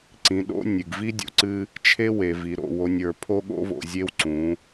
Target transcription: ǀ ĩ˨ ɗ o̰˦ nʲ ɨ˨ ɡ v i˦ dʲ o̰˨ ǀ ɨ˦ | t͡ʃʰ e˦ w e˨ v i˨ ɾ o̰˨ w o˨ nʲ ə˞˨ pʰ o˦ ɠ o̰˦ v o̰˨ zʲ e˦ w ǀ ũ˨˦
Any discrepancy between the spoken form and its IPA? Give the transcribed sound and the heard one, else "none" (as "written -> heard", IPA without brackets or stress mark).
none